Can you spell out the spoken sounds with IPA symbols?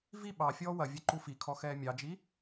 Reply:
v i ɓ ɑ fʲ ɔː w ɐ vʲ ɛ ǃ u f i kʰ ɔ x ɛː mʲ ɑ d͡ʒ i

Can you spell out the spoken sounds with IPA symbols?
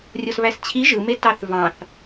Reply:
rʲ o s β æ s t͡ɕʰ i ʒ ɯ m e t ɑ θ v ɑ̃ θ

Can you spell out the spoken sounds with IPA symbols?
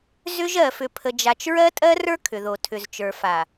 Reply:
z ʏ˦ ʒ ɜ˨ f ʏ˨ pʰ ə˨ d͡ʒ a˨ t͡ʃ ɹ ɜ˦ tʼ ɜ˦ r ə˞˦ kʰ ʏ˨ ð o˨ tʰ ʏ˨ z t͡ʃ ə˞˨ f a˨

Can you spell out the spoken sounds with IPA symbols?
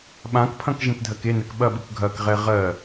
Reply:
ɓ ã k pʰ ɐ̃ k ʒ ẽ k dʱ ɜ k e n ɛ k ɓ ɐ ɓ ɯ k ɡʱ ɐ k ʁ ɛ ʁ ɜ

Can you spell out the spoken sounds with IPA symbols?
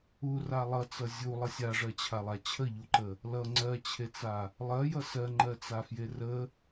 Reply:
u r a lˠ ʌ t͡s ʌ zʲ u lˠ ʌ sʲ a ʐ ɜ t͡ɕʰ a lˠ a t͡ɕʰ ə ʎ u ǃ ə | l ʌ ŋ͡ǀ ɜ t͡ɕʰ e t͡s a | lˠ ɜ j ʌ s ɜ ŋ͡ǃ ɜ t͡s a f j e r ə

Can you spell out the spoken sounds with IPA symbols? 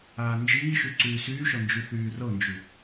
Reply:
aː n d͡ʒ iː ʃ y ǀ yː s yː ʃ ɔ n d͡ʒ y θ yː r ɤ n d͡ʒ y

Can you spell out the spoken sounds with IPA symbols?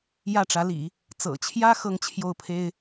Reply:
j ä˥˩ ʈ͡ʂ ä˧˥ l ḭ˨˩˦ | t͡s ɤ̰˨˩ t͡ɕʰ j ä˥ x ɤ˥ ŋ t͡ɕʰ j o˥˩ ʊ̯ pʰ e˥ ɪ̯

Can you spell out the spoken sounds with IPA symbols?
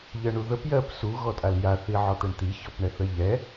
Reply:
ʎ ɜ ɳ u ð ə p j ɜ p s u ɣ ɔ tʼ a l j a θ i ʕ ɔ t̪ ɛ ɳ t̪ i ç ɔ p ɳ ɛ θ ɜ ʎ ɛ

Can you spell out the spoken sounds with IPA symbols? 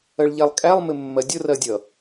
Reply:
ɜ ɭ ʎ æ lˠ kʼ æ lˠ m ɪ mː ɜ dʲ ʊ r ɜ dʲ ʌ

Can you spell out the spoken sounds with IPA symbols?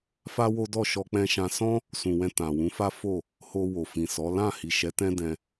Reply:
f a˦ w o˦ d ɔ˦˨ ʃ ɔ˧ k͡p ɛ̃˧ ʃ ã˧ s ɔ̃˦ | s ũ˨ w ɛ̃˧ t ã˨ w ũ˨˦ f a˦ f o˦˨ | h o˧ w o˨ f ĩ˨ s ɔ˨˦ l ã˦˨ h i˨ ʃ ɛ˨˦ t ɛ̃˦ d ɛ̃˧

